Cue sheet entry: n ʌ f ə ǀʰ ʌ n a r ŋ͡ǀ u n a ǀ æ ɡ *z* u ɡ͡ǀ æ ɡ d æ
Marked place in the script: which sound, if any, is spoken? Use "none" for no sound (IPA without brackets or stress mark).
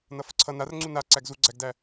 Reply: z